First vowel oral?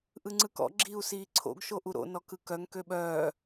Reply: yes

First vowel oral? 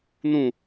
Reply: no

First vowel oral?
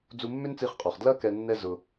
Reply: yes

